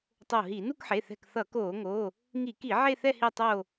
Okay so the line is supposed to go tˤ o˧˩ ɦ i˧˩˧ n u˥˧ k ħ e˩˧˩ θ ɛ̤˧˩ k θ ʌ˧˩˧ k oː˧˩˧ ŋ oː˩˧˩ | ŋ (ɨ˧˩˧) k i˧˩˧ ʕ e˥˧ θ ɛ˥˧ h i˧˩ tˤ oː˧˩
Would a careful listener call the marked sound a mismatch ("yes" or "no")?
yes